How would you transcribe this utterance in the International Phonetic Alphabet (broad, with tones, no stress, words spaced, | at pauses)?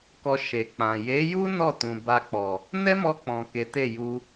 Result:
kɔ˧ ʃe˨k͡pã˨ je˨˦ju˦ nɔ˦˨ tũ˨ba˧k͡pɔ˨ | nɛ˦mɔ˧k͡pɔ̃˨ ke˨˦te˦˨ ju˧